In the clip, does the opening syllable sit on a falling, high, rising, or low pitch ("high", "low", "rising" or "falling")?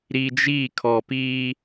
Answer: low